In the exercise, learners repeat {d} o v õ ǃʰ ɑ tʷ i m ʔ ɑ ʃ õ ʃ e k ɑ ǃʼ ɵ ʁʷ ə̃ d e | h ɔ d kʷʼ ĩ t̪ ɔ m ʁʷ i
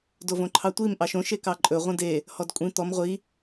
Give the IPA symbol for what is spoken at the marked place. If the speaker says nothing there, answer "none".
d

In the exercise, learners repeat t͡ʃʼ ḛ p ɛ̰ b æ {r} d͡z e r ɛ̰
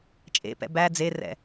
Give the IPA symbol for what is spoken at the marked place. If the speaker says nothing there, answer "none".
none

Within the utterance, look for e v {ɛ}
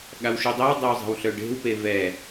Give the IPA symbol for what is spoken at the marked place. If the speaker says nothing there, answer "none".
ɛ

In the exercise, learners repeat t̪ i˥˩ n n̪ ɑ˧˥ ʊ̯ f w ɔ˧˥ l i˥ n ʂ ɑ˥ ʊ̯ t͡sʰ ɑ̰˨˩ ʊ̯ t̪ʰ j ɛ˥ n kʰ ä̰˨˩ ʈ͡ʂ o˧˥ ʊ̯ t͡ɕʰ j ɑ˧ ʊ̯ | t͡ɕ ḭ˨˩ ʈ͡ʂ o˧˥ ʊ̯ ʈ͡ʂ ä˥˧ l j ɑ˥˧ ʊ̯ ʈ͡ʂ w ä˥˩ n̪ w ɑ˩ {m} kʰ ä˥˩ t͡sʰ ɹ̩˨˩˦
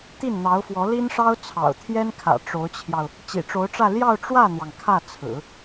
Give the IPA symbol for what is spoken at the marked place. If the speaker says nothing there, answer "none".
ŋ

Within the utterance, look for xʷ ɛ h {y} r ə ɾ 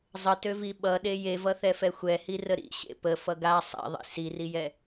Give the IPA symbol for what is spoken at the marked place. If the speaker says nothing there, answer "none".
i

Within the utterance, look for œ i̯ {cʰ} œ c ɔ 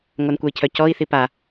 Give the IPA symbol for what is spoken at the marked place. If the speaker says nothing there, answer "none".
cʰ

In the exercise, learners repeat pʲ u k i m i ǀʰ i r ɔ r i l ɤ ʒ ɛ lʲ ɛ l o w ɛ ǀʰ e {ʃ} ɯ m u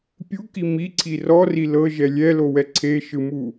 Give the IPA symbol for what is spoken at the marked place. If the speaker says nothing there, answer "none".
ʃ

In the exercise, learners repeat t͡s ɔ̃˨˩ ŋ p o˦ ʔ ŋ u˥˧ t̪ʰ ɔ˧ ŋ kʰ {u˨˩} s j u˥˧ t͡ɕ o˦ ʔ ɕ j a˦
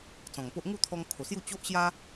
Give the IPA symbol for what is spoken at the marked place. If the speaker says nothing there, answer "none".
o˨˩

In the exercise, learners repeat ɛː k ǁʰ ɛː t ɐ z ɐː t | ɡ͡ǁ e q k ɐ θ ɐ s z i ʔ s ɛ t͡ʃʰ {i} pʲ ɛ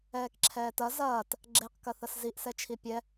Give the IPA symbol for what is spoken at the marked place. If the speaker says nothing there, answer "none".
i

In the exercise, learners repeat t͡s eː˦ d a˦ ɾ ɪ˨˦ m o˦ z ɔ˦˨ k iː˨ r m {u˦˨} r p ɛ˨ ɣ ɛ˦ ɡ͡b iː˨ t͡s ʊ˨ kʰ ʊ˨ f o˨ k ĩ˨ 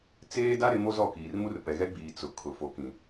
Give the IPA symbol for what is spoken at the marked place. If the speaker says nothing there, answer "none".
u˦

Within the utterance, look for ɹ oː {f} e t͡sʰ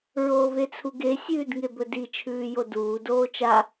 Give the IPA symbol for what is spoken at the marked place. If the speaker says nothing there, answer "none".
v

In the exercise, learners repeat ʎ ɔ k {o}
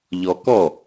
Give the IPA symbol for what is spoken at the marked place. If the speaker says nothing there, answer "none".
ɔ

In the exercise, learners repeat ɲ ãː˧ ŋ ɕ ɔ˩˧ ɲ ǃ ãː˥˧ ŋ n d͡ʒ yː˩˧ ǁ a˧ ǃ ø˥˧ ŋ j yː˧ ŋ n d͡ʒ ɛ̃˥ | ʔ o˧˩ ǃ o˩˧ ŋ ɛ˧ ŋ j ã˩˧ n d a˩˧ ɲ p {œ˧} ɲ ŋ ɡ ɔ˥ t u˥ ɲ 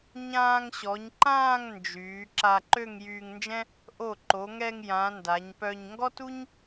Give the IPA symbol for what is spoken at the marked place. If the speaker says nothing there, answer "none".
œ˧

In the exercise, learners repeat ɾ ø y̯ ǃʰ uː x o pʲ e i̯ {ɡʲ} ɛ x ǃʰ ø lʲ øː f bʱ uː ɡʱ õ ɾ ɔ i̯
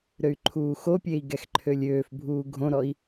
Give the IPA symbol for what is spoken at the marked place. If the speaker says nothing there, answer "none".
ɡ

